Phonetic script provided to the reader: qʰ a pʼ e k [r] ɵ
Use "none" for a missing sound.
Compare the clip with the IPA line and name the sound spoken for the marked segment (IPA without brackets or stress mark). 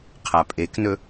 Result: n